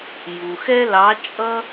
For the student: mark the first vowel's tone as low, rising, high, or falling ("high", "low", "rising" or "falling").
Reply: low